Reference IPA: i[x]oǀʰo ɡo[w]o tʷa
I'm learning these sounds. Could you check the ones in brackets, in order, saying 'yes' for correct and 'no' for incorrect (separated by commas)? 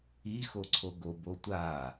yes, no